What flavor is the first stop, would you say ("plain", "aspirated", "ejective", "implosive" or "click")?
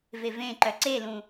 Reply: click